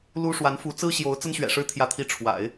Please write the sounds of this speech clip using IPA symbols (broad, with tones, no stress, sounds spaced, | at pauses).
l u˥ ʂ w a˧˥ n f u˧˥ t͡s ɹ̩˥ ɕ j o˧˥ ʊ̯ t͡s ə˥ n ɕ ɥ ɛ̰˨˩ ʂ ɻ̩˥ t̪ʰ j ä˥˧ t̪ʰ i˥˩ ʈ͡ʂʰ w a̰˨˩˦ ɪ̯